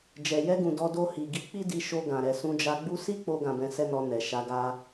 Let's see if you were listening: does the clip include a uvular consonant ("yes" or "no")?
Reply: no